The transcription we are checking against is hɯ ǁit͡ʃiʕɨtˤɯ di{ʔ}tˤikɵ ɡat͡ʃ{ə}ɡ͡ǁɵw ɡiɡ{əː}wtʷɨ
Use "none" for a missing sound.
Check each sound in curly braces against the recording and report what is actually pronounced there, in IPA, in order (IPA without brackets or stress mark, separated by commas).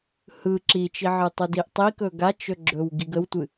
ʔ, ɵ, ə